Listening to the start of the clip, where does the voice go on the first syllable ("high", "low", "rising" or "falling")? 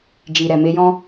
low